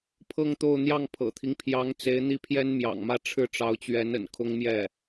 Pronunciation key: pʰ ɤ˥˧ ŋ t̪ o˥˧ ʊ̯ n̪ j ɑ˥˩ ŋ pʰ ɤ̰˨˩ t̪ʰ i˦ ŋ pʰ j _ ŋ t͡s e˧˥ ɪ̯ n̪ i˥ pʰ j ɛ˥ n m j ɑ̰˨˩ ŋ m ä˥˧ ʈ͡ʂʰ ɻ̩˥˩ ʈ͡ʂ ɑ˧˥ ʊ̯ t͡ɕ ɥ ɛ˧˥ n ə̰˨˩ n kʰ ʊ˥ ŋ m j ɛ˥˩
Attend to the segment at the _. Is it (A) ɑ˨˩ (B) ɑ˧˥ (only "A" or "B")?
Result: B